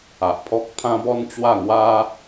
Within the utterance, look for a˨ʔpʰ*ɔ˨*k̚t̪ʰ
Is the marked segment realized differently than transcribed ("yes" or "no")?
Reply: yes